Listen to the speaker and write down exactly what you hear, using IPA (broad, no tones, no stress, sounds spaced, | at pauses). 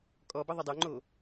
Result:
kʼ ɔ b ɐ ðˤ ɐ dˤ o ŋ͡ǃ o